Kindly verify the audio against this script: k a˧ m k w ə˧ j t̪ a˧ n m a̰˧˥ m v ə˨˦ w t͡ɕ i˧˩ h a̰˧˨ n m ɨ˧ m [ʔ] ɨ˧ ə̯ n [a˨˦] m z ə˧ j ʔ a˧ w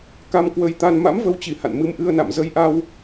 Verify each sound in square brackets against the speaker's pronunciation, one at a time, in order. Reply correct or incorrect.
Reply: correct, incorrect: a̰˧˨

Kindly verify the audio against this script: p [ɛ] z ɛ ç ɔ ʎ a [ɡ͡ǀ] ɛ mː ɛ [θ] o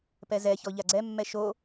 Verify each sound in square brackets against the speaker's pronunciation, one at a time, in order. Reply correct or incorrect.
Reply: correct, correct, incorrect: ʃ

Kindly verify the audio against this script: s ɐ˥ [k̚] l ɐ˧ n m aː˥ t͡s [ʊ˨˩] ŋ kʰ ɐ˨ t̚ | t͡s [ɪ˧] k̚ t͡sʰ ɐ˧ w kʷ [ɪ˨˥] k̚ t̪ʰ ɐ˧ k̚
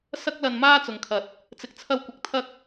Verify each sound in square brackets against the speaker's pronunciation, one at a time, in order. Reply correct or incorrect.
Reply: correct, incorrect: ʊ˨, incorrect: ɪ˨, correct

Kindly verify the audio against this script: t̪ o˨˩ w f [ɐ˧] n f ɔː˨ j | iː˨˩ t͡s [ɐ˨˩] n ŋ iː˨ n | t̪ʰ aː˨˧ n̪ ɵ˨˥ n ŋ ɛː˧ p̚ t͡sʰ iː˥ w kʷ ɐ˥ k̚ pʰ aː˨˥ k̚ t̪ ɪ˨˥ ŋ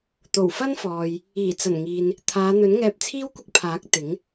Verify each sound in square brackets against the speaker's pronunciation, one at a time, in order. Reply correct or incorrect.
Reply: incorrect: ɐ˥, correct

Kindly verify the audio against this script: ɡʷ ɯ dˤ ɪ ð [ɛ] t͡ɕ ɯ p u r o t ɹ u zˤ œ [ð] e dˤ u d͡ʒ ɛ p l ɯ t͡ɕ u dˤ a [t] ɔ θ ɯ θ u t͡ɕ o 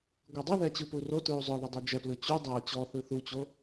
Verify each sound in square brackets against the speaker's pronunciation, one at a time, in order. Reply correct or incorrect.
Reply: correct, correct, incorrect: t͡ɕ

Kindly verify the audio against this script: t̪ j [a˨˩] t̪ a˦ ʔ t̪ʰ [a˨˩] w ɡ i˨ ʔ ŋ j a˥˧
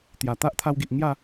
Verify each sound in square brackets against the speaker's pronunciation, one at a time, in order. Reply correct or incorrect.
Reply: correct, incorrect: a˧

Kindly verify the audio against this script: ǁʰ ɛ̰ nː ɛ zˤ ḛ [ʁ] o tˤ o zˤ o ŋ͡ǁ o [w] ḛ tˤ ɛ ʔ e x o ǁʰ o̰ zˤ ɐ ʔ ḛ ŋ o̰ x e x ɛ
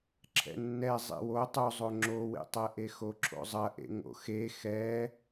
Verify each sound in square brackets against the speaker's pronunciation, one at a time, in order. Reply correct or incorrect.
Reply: incorrect: w, correct

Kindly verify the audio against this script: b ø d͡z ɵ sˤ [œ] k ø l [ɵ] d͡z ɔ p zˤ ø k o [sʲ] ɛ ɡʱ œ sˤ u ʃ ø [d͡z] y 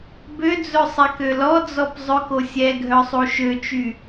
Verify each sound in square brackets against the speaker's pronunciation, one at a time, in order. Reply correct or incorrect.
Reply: incorrect: ɛ, incorrect: ɔ, correct, incorrect: t͡ʃ

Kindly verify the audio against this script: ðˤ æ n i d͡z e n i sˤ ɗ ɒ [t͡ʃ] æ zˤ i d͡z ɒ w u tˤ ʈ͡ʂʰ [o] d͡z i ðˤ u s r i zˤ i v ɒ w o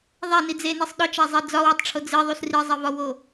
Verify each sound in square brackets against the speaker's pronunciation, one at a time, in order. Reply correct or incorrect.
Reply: correct, correct

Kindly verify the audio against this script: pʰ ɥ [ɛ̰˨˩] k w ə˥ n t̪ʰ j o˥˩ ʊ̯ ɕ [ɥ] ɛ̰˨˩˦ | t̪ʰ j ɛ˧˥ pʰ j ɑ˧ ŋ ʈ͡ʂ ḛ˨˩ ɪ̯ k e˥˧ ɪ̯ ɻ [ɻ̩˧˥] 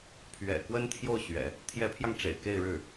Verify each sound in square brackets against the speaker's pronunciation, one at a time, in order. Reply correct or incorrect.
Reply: correct, correct, incorrect: ɻ̩˥˩

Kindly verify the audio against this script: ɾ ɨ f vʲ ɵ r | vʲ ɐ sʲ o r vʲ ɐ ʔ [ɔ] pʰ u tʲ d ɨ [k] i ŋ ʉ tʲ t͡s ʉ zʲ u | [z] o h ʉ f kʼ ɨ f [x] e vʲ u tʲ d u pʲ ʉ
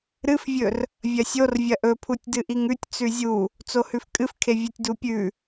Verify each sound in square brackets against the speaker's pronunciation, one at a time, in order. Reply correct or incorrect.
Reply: incorrect: ɵ, incorrect: ʔ, incorrect: t͡s, incorrect: kʰ

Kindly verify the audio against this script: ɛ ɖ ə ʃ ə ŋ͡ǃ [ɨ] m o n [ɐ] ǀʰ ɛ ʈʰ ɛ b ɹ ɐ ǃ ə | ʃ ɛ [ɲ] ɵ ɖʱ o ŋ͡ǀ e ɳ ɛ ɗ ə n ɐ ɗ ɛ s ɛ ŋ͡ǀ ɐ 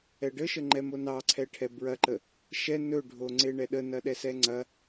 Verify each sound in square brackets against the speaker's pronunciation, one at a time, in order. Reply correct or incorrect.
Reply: incorrect: ɛ, incorrect: ɑ, incorrect: n

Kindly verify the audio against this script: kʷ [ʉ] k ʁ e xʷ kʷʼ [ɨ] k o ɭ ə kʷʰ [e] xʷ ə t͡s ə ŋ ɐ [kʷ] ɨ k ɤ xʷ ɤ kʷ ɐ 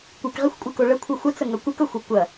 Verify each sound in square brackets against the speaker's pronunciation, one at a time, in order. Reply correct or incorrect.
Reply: incorrect: ɨ, correct, incorrect: ɨ, correct

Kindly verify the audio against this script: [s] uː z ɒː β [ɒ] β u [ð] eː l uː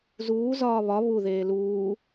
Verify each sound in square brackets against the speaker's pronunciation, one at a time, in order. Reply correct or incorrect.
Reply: incorrect: z, correct, correct

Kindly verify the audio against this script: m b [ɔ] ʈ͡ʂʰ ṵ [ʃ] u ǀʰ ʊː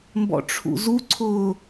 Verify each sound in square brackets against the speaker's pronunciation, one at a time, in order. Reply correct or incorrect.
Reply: incorrect: ɔ̰, incorrect: z

